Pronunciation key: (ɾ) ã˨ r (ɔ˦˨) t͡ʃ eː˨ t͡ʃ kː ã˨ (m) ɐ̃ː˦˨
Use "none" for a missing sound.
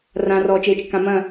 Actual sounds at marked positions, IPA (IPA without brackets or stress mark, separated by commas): r, ɔ˨, m